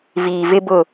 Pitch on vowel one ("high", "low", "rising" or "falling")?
low